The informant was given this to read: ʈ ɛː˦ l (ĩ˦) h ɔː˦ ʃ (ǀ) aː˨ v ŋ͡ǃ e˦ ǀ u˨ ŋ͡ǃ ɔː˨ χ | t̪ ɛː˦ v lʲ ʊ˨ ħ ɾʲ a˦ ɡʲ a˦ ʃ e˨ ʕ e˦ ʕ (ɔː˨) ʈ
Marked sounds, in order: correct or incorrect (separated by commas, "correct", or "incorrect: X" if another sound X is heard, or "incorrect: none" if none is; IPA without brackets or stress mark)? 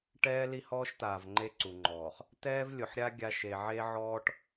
incorrect: i˦, incorrect: t̪, incorrect: ɔː˦